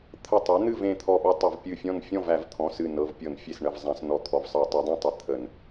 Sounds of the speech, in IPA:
t̪ʰ ə˧˩ tˤ e˩˥ n̪ ɨ˥˨ v ẽ˧˩ t̪ʰ ɔ˧˩ ɓ ɤ˦ tˤ ə˧˩˧ v pʲ ɨ˧˩ fʲ ɔ̃˥˨ n fʲ ɔ̃˥˨ v æ˧˩˧ v t̪ʰ ɔ̃˩˧˩ s ɨ˧˩ n ɤ˩˧˩ v pʲ ɤ˧˩˧ n fʲ e˧˩ s ɳ ə˩˧˩ v zˤ æ̃˧˩˧ s n ɔ˧˩˧ t̪ʰ ɔ˩˧˩ v sˤ ɤ˧˩˧ tˤ e˩˥ dˤ ẽ˥˨ tˤ ə˧˩ t̪ʰ ə˧˩˧ n

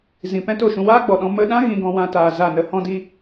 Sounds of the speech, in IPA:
z ĩ˨ p ɛ̃˦ t o˦˨ ʃ ũ˧ w aː˦ ɡ͡b ɔ˨ ɗ ɔ̃˧ m ə˧ ɗ ã˦ ɣ ĩ˧ ɡ ɔ̃˧ w ã˦ t aː˧ z a˦˨ n ə˧ h ɔ̃˦ d i˦

